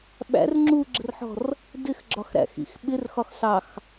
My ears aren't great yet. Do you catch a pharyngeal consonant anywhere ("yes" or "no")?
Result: yes